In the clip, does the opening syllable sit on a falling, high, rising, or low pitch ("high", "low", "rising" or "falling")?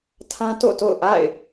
high